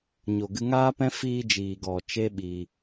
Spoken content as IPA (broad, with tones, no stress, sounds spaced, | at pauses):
ɲ o˨ ɡ ɨ˧ ŋ aː˦ p ɛ̃˦ f iː˧ d͡ʒ iː˨ ɡ ɔ˨ t͡ʃ e˦ ɓ i˧